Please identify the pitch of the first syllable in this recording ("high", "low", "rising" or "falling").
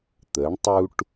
rising